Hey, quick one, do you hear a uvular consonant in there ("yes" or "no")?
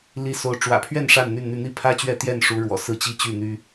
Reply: no